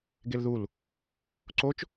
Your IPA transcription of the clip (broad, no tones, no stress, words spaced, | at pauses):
ɡelðul | ǀot͡ʃ